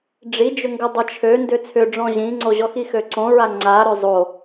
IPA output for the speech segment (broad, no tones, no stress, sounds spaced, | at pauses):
ɖ͡ʐ i d͡ʒ ʏ ŋ ɡ ʏ dˤ ə t͡ʃʰ ø n d ʏ t͡sʰ ʏ ɖ͡ʐ ɔ̃ ʑ ĩ ŋ͡ǀ o ʑ ɔ x i x ø ǀ õ ɹ a ŋ͡ǀ a ɾ ø zˤ o